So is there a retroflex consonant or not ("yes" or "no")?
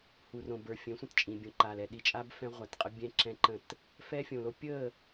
no